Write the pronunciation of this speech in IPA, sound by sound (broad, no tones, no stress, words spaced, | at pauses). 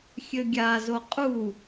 xʲɘɡʲazo qʼu